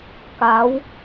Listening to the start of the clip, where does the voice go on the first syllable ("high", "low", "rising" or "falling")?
rising